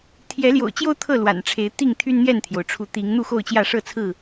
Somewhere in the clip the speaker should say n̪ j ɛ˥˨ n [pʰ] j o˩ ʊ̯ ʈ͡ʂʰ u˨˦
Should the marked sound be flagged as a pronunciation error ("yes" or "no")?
yes